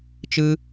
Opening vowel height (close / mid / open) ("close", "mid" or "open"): close